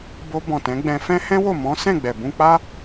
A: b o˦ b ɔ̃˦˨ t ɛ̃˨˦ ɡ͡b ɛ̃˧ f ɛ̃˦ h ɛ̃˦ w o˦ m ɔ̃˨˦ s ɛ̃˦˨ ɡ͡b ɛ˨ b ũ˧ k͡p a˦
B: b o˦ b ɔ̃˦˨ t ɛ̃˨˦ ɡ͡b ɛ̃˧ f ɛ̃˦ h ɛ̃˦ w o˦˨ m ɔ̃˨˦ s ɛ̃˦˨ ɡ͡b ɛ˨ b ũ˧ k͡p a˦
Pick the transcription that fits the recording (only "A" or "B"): B